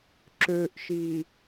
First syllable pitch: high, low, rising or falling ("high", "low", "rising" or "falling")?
low